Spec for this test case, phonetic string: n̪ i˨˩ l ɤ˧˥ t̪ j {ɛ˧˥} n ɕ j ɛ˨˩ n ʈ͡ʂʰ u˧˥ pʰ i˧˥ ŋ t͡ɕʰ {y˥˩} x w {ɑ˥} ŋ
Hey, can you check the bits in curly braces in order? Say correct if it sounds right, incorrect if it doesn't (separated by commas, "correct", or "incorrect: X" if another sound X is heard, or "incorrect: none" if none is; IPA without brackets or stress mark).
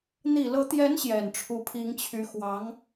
correct, incorrect: y˧˥, incorrect: ɑ˧˥